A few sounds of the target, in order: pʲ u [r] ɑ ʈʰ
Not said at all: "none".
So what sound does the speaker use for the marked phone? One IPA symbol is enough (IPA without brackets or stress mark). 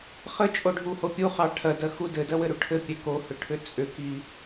χ